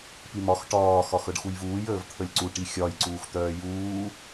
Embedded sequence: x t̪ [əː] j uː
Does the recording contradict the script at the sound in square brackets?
yes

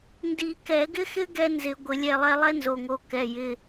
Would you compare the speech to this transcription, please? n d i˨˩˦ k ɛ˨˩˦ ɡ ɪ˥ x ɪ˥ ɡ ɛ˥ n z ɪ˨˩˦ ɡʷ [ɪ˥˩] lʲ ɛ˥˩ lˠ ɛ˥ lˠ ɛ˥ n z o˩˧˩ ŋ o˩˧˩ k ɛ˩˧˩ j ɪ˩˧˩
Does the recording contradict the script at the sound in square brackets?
yes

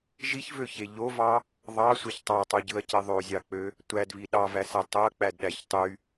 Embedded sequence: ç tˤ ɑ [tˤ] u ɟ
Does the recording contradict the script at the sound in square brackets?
no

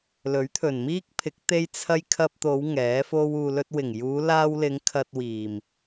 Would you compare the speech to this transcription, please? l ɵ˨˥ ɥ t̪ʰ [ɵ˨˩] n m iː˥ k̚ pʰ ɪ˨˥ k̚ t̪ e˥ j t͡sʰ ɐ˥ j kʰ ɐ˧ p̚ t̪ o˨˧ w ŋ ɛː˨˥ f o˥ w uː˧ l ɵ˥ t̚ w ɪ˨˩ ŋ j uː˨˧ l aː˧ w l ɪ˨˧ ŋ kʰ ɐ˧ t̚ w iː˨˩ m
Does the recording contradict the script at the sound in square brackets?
no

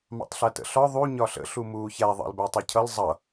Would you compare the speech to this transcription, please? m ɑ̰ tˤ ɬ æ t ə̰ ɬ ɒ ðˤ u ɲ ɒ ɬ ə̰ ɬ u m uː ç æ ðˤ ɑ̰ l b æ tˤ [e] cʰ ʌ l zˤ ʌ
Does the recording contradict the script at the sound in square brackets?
yes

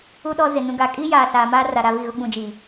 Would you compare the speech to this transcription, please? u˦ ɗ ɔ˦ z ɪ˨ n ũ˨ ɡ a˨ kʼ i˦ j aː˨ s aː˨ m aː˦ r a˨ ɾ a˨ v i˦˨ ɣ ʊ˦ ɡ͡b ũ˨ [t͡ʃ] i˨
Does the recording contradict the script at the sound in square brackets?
yes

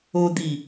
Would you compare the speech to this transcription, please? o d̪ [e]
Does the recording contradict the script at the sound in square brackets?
yes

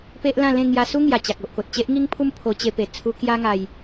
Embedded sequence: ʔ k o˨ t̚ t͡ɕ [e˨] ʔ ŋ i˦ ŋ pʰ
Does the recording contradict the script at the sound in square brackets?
yes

